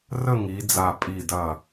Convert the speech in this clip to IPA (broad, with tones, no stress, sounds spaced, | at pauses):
r ə˥˨ ŋ i˨˦ d͡z a˧˩ pʼ i˧˩ d ɐ˧˩